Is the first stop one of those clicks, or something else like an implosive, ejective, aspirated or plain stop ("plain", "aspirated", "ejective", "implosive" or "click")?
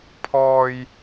aspirated